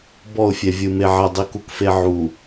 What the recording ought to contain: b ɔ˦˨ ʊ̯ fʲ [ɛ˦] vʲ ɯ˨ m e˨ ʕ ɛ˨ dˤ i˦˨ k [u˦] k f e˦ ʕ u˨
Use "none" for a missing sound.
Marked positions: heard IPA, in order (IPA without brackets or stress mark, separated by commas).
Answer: ɛ˨, u˦